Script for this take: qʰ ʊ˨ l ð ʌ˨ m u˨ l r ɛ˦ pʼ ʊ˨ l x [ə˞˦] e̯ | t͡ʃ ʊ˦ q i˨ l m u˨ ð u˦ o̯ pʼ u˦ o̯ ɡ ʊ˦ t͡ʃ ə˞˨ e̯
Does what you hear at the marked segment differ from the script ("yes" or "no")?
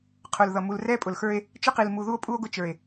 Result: no